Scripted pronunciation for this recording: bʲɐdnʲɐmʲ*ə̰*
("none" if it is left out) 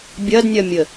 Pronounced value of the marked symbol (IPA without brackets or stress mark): ə